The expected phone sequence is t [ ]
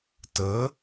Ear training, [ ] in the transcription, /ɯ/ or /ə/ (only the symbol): ə